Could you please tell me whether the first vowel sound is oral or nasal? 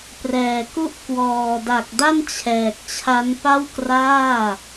oral